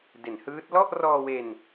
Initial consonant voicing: voiced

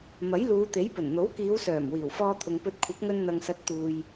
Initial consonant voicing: voiced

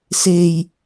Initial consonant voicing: voiceless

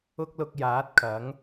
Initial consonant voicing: voiceless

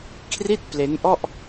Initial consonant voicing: voiceless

